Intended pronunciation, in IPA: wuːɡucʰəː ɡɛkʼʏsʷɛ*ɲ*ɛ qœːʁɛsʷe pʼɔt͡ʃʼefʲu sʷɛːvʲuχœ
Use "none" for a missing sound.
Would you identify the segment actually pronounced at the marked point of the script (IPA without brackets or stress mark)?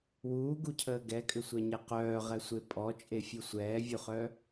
ɲ